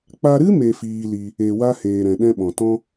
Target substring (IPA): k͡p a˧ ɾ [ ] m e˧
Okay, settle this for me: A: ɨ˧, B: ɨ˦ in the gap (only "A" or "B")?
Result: B